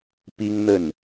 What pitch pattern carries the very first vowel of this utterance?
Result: high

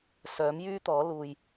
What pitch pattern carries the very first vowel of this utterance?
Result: rising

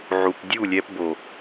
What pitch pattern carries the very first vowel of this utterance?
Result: low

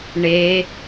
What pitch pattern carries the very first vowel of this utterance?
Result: rising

